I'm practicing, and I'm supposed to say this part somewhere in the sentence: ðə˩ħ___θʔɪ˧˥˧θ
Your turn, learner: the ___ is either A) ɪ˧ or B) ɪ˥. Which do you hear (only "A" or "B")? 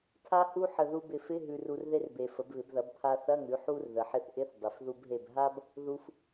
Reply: A